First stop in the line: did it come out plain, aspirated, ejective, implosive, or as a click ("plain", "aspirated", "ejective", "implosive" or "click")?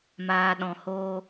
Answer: implosive